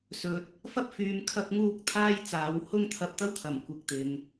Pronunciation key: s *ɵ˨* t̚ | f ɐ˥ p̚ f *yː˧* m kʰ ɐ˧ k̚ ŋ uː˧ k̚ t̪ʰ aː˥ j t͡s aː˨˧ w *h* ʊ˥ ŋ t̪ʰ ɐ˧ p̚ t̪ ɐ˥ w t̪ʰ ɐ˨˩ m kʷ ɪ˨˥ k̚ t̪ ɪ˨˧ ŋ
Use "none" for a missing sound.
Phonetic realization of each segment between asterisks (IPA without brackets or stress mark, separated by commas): ɵ˨, yː˨˧, h